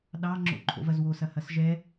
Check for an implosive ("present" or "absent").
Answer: present